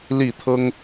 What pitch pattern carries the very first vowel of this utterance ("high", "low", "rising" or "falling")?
falling